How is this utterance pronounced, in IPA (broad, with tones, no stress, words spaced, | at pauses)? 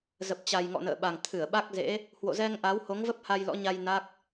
zə˨˩p̚t͡ɕa˨˩jŋɔ̰˧˨ nə̰ː˧˨ɓa˨˩ŋ t̪ʰɨ˧˩ə̯ɓa˦˥k̚zḛ˧˥ | hwo̰˧˨zɛ˧ŋʔa˨˦w ho˨˦ŋvə˦˥p̚ ha˧jlɔ̰˧˥ɲa˧j na˦˥k̚